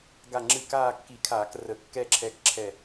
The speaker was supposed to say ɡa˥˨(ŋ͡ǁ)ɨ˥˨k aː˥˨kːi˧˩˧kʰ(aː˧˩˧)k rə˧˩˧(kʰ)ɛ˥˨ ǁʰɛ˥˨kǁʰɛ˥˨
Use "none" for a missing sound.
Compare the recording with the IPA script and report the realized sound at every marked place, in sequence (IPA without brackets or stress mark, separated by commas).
ŋ͡ǁ, aː˧˩˧, kː